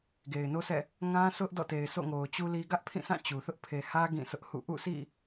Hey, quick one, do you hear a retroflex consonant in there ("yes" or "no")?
no